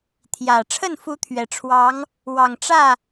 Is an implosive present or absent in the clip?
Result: absent